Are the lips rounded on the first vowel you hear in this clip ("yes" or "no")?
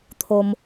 yes